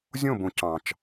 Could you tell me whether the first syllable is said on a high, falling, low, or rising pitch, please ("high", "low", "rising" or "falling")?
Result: falling